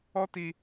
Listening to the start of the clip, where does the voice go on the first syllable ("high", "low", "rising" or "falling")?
high